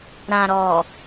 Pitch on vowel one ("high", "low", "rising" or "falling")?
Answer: low